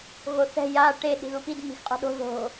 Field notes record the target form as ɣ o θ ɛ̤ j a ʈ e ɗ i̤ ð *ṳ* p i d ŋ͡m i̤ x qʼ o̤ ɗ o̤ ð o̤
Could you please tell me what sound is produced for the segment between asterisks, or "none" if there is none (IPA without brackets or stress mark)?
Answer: u